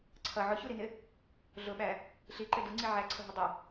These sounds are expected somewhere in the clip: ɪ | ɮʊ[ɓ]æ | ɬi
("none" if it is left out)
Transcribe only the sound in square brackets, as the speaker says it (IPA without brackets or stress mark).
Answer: ɓ